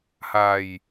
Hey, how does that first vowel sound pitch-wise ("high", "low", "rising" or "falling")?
low